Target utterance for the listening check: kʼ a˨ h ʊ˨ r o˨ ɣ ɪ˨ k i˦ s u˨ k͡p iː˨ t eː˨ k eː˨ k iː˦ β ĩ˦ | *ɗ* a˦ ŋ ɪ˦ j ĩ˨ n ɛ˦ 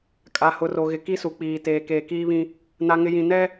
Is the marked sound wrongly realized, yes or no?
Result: yes